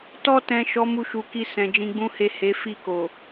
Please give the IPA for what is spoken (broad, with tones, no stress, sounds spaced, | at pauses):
t ɔ˧ t ɛ̃˨ ʃ ɔ˨˦ m u˧ ʃ u˨ k i˧ s ɛ̃˨ d͡ʒ ĩ˧ ɡ͡b ũ˦ h e˦˨ h e˨˦ f i˦˨ k o˨